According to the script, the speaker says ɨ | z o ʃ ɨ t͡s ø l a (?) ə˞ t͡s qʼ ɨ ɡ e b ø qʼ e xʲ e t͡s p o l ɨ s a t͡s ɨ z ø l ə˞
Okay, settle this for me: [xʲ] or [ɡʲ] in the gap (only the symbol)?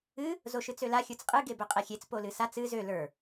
xʲ